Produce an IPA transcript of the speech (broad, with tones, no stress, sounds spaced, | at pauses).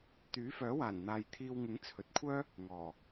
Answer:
t̪ yː˨˥ f œː˨˥ w aː˨˩ n n̪ aː˨ j t̪ʰ iː˧ w ŋ ɪ˨˥ ŋ t͡sʰ ɵ˨ t̚ kʷʰ œː˥ | ŋ ɔː˨˩